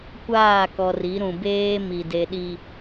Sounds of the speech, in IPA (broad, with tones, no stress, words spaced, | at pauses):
kʷaː˦˨kɔ˨ri˨˦ɾũ˨ beː˦mi˨ de˨ɗi˨